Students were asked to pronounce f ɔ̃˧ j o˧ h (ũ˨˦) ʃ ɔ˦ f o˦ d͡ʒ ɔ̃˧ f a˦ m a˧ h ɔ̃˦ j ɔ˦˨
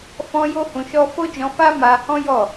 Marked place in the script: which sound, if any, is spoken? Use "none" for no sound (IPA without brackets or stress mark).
ũ˧